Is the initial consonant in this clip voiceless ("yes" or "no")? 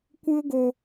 yes